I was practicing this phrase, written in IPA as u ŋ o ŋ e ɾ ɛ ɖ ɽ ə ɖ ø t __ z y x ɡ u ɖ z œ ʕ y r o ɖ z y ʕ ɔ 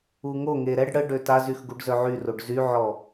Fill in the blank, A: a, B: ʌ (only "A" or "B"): A